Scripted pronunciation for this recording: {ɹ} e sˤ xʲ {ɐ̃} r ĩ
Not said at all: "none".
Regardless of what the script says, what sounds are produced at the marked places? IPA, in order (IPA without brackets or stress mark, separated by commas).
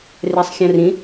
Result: r, ɐ̃